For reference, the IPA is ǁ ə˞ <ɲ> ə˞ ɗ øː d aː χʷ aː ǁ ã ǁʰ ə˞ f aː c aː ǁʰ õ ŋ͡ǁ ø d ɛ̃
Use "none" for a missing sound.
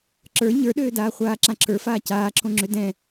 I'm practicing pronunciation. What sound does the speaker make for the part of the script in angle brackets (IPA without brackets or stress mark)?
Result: ɲ